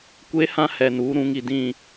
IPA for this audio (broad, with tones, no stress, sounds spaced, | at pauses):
kʷ e˦ h ã˦ h ɛ˨ n uː˨˦ ɾ ũ˨˦ ŋ i˨ d ĩ˦˨